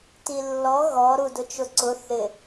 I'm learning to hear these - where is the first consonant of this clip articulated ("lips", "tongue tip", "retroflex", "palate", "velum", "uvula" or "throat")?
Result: tongue tip